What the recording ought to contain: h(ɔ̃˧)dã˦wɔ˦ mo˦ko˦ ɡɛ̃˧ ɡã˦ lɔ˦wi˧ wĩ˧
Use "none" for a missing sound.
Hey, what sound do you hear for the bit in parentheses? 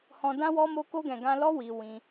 ɔ̃˧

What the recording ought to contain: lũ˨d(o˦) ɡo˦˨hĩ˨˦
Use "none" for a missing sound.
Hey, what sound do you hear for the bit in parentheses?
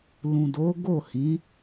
o˨˦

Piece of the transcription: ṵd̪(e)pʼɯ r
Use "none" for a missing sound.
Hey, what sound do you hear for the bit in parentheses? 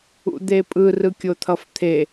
e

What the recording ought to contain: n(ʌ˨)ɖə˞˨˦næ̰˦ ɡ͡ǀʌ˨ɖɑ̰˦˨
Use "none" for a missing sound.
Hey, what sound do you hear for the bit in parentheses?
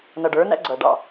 ʌ˨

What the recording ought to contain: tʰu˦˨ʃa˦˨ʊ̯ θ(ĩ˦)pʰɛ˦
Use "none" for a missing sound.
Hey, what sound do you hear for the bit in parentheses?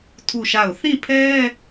ĩ˦˨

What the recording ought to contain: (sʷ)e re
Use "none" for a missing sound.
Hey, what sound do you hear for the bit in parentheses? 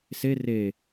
s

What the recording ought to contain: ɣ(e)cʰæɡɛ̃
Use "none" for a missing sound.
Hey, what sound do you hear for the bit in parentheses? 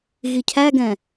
i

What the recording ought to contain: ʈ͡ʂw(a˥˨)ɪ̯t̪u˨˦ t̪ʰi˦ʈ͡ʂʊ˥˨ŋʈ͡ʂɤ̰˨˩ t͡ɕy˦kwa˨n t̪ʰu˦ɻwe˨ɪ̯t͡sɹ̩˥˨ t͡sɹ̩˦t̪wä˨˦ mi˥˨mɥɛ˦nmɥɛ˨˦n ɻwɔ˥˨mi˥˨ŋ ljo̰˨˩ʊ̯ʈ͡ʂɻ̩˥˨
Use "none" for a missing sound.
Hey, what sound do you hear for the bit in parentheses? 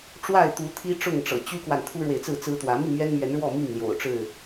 a˥˨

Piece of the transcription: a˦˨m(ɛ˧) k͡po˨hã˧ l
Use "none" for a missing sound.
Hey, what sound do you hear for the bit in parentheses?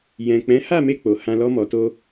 e˧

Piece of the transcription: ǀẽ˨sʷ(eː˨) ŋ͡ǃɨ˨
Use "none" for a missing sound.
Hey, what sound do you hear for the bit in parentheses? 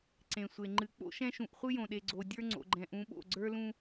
e˨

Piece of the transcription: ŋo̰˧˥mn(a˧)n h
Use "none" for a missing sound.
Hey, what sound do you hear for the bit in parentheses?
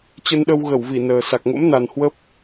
a˨˩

